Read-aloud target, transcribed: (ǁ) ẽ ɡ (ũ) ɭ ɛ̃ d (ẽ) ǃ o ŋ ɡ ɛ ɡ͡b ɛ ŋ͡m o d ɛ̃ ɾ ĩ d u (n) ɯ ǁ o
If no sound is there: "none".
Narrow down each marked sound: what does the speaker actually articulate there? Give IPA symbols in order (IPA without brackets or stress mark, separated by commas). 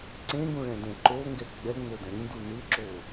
ǀ, ũ, ɛ̃, n